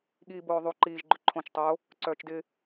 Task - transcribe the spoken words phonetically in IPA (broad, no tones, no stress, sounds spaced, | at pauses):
ɠ iː b oː ðˤ u ǃ iː ʒ ɡ͡ǃ ʏ ǃʰ õ t͡ʃ tˤ o | ǀ œː t͡ʃ d ɪ